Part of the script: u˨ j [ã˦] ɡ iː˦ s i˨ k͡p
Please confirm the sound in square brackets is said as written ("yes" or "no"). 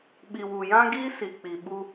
yes